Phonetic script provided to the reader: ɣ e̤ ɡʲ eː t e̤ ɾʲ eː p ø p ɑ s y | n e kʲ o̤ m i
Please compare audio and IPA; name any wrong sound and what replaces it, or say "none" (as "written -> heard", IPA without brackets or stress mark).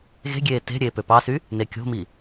none